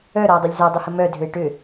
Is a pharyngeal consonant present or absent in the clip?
absent